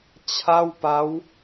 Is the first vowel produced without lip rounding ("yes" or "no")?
yes